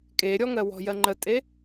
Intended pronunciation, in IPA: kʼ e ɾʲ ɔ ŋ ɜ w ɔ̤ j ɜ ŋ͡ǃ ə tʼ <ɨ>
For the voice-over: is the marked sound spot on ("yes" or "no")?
no